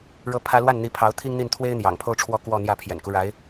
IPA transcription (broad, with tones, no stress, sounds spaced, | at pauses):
ɻ ɤ˥ pʰ ä˥ l w a˥˩ n n̪ i˧˥ pʰ ɑ˧˥ ʊ̯ t̪ʰ i˥ ŋ n̪ i˥˩ n t̪ʰ w e˥ ɪ̯ n̪ j ɑ̰˨˩ ŋ pʰ o˥ ʊ̯ ʈ͡ʂʰ w ɔ˥˧ k w ɔ˥˧ n̪ j ä˥˩ pʰ j ɛ̰˨˩ n k u˦ ɻ a˧˥ ɪ̯